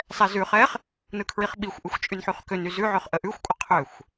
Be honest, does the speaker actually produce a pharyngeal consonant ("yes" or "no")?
yes